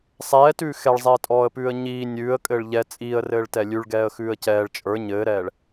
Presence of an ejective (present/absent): present